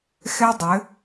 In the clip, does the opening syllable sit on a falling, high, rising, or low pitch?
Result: high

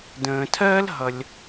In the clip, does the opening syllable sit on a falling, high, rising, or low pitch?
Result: low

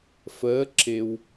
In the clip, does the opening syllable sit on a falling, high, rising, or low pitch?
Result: rising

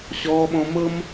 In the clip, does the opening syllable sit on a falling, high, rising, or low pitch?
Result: low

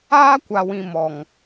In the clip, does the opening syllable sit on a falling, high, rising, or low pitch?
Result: high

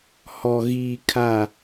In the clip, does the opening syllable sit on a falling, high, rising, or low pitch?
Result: high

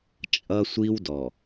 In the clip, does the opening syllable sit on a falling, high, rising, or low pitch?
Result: high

